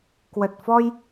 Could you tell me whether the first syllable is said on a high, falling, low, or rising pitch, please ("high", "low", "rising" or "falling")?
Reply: low